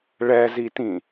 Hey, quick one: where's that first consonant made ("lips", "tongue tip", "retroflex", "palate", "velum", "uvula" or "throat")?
retroflex